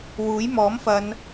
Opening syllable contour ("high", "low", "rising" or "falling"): rising